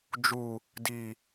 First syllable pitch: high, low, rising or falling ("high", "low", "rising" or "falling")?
low